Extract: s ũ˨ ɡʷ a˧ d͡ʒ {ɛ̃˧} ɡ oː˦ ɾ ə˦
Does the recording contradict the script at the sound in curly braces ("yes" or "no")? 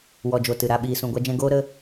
no